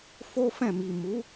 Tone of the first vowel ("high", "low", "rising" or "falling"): high